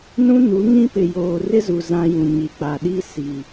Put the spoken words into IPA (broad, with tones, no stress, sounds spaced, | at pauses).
n ũ˦ n u˨˦ ŋ ĩ˦ p ɪ˨ j oː˨ r ɪ˦ z u˨ z ã˦ j ũ˨ ɲ i˨ k͡p a˨ ɗ i˦ s i˨